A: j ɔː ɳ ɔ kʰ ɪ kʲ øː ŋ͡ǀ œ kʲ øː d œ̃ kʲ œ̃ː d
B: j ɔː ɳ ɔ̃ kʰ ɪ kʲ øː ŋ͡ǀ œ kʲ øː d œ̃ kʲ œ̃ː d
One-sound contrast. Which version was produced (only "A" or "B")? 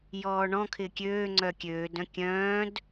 B